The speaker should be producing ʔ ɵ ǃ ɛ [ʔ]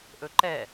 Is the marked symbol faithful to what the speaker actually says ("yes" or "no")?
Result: no